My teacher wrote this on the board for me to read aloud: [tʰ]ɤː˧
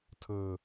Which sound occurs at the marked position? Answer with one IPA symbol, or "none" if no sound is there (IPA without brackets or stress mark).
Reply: tʰ